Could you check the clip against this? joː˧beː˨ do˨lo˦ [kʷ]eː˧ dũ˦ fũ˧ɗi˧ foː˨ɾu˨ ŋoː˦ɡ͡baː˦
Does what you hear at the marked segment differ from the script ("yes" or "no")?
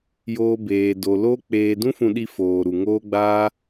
yes